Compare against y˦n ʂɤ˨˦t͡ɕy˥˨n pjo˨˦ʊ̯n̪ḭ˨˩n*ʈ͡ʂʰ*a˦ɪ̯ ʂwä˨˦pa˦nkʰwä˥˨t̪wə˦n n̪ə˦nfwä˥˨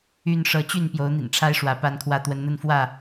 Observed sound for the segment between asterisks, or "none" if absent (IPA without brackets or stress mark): ʈ͡ʂʰ